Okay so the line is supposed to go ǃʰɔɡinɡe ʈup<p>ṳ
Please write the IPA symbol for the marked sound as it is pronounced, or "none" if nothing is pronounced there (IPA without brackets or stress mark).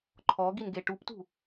t